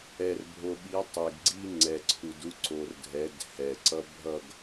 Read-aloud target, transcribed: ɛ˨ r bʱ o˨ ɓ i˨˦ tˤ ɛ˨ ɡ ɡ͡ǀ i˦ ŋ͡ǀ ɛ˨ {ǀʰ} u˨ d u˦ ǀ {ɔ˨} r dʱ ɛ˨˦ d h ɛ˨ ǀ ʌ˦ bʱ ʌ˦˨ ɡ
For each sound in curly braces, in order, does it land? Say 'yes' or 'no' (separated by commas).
yes, no